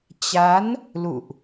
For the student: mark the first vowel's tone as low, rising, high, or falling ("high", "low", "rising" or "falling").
rising